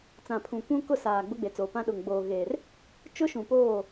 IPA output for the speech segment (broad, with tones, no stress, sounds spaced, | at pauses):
t͡s ã˨ pʰ ũ˨ kʷ ũ˦ k ʊ˦˨ s aː˨ ɡ͡b ʊ˦ ɡ͡b e˨ t͡s oː˨ p ã˦ ɗ ʊ˨ ŋ ɡ͡b oː˨ ɣ eː˨ r | t͡ʃ ʊ˦ ʃ ũ˨ p oː˦˨